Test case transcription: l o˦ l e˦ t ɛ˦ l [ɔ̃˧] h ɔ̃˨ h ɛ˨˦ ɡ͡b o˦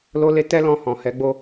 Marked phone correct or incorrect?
correct